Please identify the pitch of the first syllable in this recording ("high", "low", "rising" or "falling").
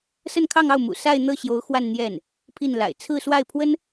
falling